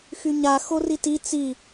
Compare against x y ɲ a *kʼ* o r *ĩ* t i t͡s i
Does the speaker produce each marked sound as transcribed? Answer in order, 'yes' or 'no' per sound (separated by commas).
no, no